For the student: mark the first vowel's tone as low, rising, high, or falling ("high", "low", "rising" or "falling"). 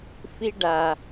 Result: high